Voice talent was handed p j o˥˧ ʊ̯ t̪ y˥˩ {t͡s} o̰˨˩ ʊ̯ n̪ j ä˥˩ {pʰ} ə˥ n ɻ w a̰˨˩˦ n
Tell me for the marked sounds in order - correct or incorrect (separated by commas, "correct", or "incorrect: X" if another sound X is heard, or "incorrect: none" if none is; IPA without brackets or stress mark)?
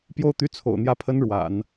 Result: incorrect: t͡sʰ, correct